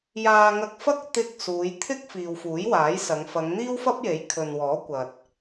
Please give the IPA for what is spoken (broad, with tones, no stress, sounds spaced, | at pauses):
j aː˧ ŋ ɐ˧ k̚ f ɐ˥ k̚ t̪ ɪ˧ k̚ s uː˨˧ j t̪ʰ ɪ˥ k̚ f iː˨ w f uː˨˥ j w aː˨˥ j s ɐ˨˧ ŋ f ɐ˨˧ ŋ n̪ iː˥ w f ɐ˥ p̚ j e˨˥ j kʰ ɵ˨ n w ɔː˨˥ kʷ ɐ˨ t̚